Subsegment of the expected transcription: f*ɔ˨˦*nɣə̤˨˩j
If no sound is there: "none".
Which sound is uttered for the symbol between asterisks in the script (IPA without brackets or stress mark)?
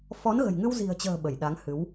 ɔ˨˦